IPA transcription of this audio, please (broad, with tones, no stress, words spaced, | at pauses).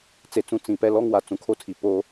t͡se˨t͡sũ˨ t͡sĩ˨ pɛ˦lɔ˦ŋwa˨ t͡sũ˨kʰo˦tʰi˨ poː˦